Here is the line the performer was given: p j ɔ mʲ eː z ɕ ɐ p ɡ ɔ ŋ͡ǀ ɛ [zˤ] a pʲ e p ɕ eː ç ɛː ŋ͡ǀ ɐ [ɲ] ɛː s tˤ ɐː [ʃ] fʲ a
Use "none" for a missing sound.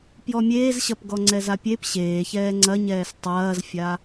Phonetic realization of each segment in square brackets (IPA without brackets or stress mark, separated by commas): z, ɲ, z